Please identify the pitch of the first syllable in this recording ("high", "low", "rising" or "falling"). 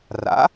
rising